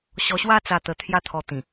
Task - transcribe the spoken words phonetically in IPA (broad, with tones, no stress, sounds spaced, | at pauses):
ɕ ɔ˧ ɕ w a˦ t͡s a˧ t̪ ə˧ t̪ʰ j a˦ t̪ʰ ɔ˧ t̪ ĩ˨˩